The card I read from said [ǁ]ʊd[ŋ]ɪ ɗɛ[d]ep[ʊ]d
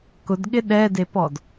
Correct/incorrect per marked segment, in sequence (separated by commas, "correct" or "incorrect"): incorrect, incorrect, correct, incorrect